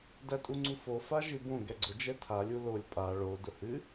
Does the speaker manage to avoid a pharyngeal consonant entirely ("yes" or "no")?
yes